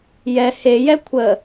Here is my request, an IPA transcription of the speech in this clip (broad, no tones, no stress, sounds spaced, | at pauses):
j ɛ h e j ɛ kʷʰ ə